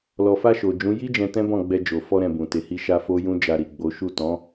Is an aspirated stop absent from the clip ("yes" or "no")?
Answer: yes